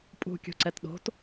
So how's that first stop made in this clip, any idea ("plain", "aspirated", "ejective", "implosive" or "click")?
ejective